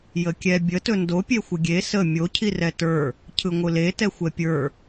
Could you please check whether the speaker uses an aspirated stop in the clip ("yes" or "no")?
yes